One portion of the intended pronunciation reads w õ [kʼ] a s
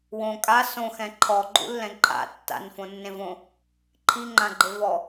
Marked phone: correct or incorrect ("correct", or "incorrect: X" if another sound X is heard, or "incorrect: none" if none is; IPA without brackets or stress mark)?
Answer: correct